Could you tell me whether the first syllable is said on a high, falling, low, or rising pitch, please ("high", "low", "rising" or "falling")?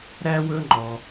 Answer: high